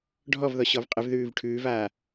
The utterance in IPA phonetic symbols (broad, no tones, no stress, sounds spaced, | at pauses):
ɖʱ ɔ v ð ɔ ɕ ɔ v qʼ ɪ v ð ʉː v ʈʰ ʉː v aː